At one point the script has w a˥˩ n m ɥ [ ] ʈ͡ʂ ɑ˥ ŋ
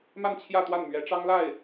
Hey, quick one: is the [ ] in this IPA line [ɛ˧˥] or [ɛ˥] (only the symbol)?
ɛ˧˥